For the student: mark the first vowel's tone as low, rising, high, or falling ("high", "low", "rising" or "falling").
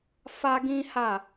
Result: high